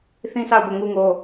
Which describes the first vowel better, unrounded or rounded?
unrounded